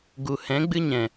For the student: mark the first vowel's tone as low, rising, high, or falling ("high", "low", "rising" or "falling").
low